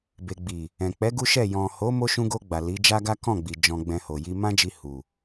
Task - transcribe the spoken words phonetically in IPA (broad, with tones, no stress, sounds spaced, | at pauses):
b e˨ ɡ͡b i˨ | ɛ̃˨ k͡p ɛ˨˦ ɡ u˦ ʃ ɛ˦˨ j ɔ̃˨ h o˨˦ m o˧ ʃ ũ˧ ɡ o˧ ɡ͡b a˨ l i˨˦ d͡ʒ a˦ ɡ a˦ k ɔ̃˦˨ ɡ͡b i˨ d͡ʒ ɔ̃˨ ɡ͡b ɛ̃˨ h o˨ j i˧ m ã˦ d͡ʒ i˧ h u˨